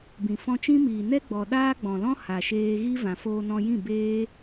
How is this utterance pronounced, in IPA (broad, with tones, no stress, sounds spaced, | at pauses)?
b ĩ˨ f ɔ̃˧ t͡ʃ ĩ˦ m iː˨ n ɛ˦ ɡ͡b ɔ˨ ɗ aː˦ ɡ͡b ɔ̃˨ l ɔ̃˦ h a˨ ʃ eː˧ ɣ i˦ v ã˨ f oː˧ n ɔ̃˧ j ĩ˦˨ b eː˦